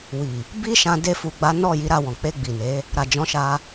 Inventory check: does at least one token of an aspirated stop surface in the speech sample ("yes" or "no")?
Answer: no